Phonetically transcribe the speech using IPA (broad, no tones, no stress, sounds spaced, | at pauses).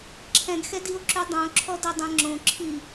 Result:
ǁʰ ɛ̃ ɡ x ɛ d i o̯ ǁ ʉ dˤ õ ǁʰ ɔ d ɘ dˤ ẽ ŋ͡ǁ õ ǁʰ i